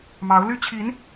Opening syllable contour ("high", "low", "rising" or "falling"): rising